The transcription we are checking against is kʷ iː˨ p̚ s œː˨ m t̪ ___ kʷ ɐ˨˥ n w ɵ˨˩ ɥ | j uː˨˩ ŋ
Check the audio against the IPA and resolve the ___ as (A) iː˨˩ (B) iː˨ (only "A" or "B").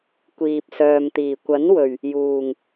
A